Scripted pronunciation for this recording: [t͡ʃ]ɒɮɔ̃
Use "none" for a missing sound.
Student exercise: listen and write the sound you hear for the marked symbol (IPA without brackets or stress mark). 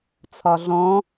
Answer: t͡sʰ